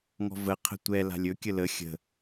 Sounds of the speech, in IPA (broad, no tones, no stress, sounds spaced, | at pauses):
ŋ ɔ̤ v ə qʰ ə̤ tʷ ɛ l a̤ lʲ ɵ kʲ ə l ə xʲ ə̤